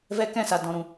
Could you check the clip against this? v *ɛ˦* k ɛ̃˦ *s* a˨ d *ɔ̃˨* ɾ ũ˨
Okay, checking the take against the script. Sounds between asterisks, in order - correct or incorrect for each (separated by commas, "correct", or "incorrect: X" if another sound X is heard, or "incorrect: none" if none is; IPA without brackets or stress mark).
correct, correct, correct